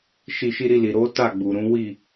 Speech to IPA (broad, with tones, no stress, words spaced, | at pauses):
ʃi˧ʃi˦ɾi˦˨li˨ ɾo˨˦ ta˦˨ɡ͡bu˨ ɾũ˨˦wi˦˨